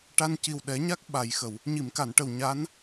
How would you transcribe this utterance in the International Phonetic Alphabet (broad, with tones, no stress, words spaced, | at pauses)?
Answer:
ʈa˧nci˨˩w ɗɛ˨˩˦ɲa˦˥k̚ ɓa˨˩˨jxə˨˩˨w | ɲi˨˩˨mka˨˩˨nʈə˨˩w ɲa˧˥n